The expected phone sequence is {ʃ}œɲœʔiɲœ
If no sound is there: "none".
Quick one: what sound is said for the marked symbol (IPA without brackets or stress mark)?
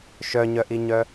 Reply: ʃ